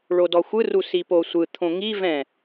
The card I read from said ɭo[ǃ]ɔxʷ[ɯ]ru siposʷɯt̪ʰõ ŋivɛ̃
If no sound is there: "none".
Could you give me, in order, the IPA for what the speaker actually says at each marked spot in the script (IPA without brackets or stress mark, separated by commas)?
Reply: d, ɯ